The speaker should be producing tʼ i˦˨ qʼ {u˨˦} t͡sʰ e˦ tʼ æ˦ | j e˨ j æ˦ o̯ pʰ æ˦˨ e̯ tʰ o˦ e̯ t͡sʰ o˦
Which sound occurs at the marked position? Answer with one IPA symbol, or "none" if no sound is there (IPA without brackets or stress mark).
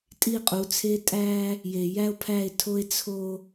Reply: u˨˦